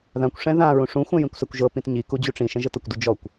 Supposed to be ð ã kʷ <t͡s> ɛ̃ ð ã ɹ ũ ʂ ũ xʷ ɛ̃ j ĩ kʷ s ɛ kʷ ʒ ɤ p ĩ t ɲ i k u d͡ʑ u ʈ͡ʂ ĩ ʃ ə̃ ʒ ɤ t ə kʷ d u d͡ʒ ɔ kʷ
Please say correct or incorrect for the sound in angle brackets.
incorrect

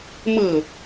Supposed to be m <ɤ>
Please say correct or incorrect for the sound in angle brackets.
correct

